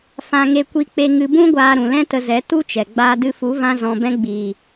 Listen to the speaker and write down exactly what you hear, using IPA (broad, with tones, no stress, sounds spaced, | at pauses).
f ã˧ ŋ e˧ kʷ i˧ k͡p e˧ ŋ ɨ˧ b ũ˦ ɡʷ aː˧ ɾ ũ˨ l ɛ̃˦ t ə˧ z ɛ˨˦ t u˦ t͡ʃ ɛ˨ ɡ͡b aː˧ d ɨ˧ f u˨˦ v ã˦ z ɔ̃˧ b ɛ̃˦ ɡ͡b iː˨